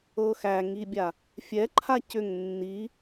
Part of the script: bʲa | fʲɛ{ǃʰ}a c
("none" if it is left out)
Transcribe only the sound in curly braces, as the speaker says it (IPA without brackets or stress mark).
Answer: ǃʰ